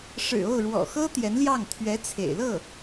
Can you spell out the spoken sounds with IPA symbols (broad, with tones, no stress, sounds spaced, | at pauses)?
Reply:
ʂ ɻ̩˨˩ o˥˩ ʊ̯ ɻ w ɔ̰˨˩ x ɤ˥ t̪ j ɛ˧˥ n l j ɑ˥˩ ŋ t̪ʰ ɥ ɛ˧˥ t͡sʰ ḛ˨˩ ɪ̯ l ɤ˥˩